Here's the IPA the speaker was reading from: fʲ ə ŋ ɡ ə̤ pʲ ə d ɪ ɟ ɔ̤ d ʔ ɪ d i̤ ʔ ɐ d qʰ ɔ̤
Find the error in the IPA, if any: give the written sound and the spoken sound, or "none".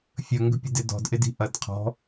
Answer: ɟ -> d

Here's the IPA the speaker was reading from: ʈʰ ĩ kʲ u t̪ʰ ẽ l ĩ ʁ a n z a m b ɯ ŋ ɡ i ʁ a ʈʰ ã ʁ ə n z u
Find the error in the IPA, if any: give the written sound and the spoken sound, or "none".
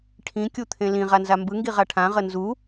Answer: none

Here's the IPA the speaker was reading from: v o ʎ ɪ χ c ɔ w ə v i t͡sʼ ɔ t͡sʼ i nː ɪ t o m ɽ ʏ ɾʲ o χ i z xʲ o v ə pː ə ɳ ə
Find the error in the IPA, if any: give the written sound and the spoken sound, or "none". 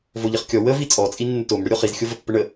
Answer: c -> kʲ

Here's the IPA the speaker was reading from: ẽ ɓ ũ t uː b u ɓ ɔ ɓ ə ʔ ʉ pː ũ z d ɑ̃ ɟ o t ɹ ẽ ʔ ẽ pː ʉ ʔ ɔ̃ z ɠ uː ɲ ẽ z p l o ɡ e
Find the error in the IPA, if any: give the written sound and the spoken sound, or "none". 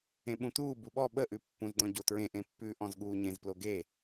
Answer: ɑ̃ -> ɔ̃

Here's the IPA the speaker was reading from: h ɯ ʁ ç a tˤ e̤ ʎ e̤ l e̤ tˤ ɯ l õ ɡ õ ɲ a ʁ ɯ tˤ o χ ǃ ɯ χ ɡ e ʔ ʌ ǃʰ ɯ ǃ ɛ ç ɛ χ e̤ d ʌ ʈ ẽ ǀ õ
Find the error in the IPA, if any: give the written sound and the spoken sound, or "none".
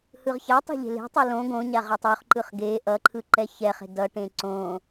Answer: none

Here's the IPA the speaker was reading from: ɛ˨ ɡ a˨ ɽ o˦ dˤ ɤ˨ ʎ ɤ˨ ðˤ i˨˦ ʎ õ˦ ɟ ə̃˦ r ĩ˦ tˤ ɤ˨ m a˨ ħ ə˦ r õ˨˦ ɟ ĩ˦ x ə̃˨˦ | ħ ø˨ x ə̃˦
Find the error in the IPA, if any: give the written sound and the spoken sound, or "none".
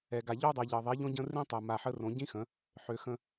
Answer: ɽ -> ʎ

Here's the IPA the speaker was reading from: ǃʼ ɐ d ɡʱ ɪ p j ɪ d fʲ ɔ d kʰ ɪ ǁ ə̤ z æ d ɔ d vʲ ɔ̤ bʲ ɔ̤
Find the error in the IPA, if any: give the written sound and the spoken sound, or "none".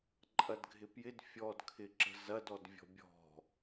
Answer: æ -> ɐ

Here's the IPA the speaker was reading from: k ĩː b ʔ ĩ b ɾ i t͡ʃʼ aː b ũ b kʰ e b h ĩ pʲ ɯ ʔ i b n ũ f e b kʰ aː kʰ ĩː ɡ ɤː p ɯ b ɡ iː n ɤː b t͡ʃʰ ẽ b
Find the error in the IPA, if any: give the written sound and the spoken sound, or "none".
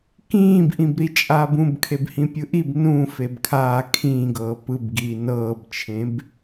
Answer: none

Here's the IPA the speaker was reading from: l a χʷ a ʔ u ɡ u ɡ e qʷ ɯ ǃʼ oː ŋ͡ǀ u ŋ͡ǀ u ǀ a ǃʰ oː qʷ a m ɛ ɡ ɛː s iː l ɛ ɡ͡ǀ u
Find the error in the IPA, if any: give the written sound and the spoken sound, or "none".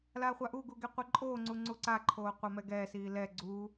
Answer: none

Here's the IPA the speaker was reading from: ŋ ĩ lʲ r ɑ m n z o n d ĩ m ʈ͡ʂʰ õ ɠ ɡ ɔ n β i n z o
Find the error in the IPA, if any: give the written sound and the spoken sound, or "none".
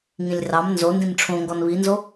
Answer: ɠ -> ŋ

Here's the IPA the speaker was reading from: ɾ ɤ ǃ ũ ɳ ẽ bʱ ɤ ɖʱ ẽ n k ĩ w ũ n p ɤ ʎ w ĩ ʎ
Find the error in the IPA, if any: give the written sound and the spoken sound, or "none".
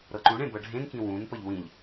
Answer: bʱ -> b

